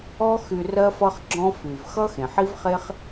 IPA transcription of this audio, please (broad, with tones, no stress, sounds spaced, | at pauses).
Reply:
ɔ˦ x y˧ r ɜ˦ f ʌ˦ χ ɡ͡ǁ ɔ̃˦ f y˨ v x ʌ˦ x ẽ˨ ħ i˦ v χ e˦ χ